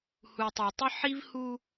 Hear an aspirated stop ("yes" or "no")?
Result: no